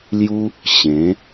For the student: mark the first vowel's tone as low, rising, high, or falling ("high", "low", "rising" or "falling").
high